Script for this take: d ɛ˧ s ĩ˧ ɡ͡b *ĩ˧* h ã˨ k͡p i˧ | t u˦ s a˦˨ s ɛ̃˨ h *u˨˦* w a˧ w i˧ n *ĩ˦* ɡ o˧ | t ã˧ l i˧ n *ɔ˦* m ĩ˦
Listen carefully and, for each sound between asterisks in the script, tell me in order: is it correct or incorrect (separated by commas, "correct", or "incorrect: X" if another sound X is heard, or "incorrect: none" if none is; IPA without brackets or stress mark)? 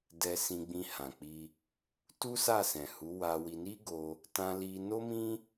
correct, correct, incorrect: i˦, incorrect: o˦